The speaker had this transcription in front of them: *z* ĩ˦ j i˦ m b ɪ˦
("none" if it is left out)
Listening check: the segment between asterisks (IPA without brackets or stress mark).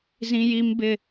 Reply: z